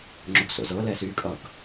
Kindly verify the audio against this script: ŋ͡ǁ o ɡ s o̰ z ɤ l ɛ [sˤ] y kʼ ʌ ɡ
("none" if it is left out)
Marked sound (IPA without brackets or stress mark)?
s